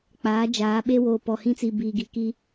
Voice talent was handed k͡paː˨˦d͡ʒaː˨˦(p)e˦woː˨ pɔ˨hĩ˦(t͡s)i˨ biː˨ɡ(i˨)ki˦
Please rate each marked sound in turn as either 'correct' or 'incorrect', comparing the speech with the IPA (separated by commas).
incorrect, correct, correct